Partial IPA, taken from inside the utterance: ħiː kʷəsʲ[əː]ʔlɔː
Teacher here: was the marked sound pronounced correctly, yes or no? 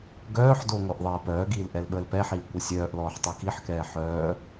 no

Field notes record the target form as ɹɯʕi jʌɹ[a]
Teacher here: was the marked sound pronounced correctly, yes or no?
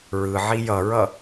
no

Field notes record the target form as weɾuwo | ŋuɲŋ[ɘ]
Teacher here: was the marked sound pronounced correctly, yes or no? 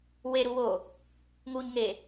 no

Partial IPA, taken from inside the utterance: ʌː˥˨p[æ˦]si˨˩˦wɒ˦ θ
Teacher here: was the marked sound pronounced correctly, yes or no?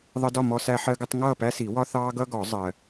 yes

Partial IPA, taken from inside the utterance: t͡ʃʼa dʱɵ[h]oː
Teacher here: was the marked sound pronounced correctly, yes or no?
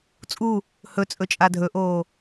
no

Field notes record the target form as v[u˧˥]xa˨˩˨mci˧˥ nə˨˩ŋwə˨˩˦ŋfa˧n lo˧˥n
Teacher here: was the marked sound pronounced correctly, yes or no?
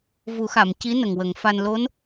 no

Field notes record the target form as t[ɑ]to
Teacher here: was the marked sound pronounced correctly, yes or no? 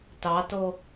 yes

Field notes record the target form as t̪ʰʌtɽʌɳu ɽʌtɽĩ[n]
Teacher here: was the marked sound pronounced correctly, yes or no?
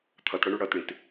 no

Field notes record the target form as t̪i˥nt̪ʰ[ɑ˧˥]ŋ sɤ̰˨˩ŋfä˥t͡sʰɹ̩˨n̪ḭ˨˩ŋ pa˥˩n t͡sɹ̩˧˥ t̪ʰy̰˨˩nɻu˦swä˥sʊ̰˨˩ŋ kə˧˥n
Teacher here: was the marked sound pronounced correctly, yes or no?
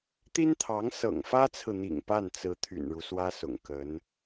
yes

